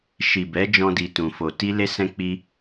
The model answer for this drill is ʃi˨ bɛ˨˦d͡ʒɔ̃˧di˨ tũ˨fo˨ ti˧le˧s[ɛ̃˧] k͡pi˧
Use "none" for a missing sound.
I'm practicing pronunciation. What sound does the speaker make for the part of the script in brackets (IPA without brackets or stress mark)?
ɛ̃˧